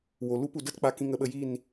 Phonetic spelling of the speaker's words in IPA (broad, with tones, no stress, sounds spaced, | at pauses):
w o˨ l u˦ p u˨ d ə˦ t k͡p a˧ k ĩ˧ ŋ ə˧ ɓ ə˧ j i˦˨ n